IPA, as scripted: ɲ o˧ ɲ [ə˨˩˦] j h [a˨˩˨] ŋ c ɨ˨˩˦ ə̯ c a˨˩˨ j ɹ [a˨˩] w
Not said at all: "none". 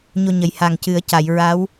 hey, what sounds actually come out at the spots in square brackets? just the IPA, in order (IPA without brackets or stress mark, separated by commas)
ə˨˩˦, a˨˩, a˧˥